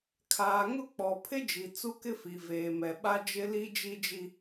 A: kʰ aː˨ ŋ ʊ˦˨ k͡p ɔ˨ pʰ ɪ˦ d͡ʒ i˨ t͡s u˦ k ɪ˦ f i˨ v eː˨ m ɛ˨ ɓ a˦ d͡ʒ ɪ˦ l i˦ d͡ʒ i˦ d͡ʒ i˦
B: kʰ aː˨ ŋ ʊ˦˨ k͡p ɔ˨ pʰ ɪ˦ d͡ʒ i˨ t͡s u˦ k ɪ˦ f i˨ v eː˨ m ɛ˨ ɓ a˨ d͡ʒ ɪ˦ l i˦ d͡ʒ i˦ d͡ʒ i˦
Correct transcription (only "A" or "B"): A